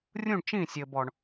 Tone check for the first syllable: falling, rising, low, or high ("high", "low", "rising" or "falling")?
falling